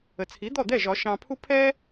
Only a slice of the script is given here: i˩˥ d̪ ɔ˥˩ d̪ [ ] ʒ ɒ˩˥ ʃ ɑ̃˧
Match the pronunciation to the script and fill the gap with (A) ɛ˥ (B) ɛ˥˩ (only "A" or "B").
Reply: B